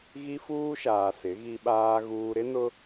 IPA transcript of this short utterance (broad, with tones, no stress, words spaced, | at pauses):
ɣi˦fuː˦ʃaː˨ sɪ˨˦ɣi˦ɓaː˦ɣuː˦ ɾɪ˦nʊ˦